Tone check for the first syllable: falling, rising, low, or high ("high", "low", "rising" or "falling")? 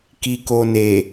low